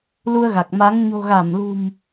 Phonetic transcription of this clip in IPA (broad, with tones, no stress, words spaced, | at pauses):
lu˧ə̯ɣa˨˩k̚ma˨˦ŋ ɲo̤˨˩ɣa˧˩mlṳ˨˩m